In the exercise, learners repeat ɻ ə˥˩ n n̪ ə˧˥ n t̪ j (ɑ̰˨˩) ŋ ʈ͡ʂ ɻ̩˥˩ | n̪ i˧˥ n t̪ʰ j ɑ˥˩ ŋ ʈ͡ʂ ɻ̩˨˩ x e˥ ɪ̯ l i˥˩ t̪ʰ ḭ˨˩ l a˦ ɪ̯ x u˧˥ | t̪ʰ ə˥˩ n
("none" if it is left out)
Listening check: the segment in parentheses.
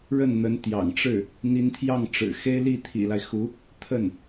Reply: ɑ̰˨˩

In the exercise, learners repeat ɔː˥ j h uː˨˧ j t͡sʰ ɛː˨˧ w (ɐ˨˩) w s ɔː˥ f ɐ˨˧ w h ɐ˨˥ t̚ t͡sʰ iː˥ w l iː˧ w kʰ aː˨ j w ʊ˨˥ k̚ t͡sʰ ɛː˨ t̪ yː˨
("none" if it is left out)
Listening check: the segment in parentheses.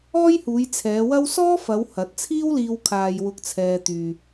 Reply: ɐ˥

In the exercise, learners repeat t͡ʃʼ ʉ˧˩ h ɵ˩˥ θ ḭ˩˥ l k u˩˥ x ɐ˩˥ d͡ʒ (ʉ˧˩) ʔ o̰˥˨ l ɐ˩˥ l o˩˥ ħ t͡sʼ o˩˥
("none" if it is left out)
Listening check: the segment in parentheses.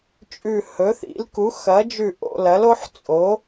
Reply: ʉ˧˩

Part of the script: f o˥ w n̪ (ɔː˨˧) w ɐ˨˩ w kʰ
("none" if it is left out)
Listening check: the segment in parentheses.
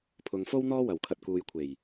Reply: ɔː˥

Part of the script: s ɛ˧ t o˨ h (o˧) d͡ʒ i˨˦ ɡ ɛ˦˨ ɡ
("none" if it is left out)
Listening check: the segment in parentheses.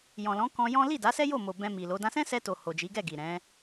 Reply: o˨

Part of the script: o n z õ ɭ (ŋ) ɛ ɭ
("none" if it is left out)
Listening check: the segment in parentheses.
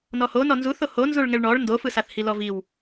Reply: ŋ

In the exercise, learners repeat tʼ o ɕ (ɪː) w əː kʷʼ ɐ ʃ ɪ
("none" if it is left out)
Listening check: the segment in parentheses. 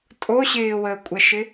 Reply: ɪː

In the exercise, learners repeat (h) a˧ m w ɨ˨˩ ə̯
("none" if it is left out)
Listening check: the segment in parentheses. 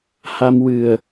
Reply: h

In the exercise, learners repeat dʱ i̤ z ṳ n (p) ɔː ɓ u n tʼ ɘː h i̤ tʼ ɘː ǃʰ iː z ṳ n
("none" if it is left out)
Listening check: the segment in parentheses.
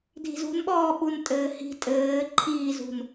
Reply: ɓ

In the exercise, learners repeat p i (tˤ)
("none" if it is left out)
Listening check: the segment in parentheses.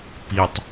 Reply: tˤ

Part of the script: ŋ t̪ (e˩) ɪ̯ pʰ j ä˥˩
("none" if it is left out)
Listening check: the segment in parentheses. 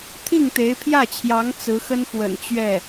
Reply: e˧˥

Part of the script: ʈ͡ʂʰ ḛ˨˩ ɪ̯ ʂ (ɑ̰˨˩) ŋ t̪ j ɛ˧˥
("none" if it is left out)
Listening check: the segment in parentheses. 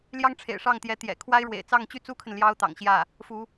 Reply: ɑ˥˩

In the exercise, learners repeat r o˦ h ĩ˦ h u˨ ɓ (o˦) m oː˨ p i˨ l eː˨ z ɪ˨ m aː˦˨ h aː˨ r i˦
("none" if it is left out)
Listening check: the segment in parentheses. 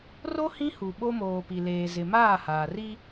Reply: o˦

